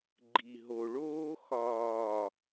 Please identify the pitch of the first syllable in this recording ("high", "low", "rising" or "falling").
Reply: low